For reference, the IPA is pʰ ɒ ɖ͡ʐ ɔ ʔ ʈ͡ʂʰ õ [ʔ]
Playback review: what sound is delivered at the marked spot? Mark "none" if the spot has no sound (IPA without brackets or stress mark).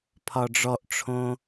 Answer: none